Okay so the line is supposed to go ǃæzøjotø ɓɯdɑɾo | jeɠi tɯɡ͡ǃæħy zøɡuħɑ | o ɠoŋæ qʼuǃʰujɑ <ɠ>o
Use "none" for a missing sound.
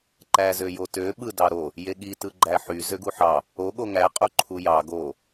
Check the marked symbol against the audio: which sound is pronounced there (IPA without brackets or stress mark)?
ɡ